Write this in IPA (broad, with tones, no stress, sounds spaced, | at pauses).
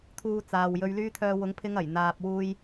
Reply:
t̪ʰ uː˧ t͡s aː˨ w j ɵ˧ ɥ l yː˥ t̪ʰ œː˧ w ʊ˨˧ ŋ pʰ ɪ˧ ŋ ɐ˨˩ j n̪ aː˨ p̚ w uː˧ j